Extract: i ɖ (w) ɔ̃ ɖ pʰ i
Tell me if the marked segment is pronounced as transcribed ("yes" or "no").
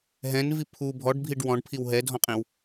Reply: yes